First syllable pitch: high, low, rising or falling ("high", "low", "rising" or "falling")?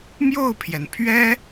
falling